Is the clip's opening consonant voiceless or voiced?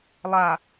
voiced